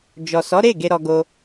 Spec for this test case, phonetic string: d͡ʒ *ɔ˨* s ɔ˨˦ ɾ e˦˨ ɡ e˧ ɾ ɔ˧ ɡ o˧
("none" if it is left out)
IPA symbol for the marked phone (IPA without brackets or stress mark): ɔ˨